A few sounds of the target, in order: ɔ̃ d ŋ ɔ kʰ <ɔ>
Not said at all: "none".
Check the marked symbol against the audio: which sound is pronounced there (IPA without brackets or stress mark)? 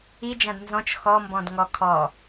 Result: ɔ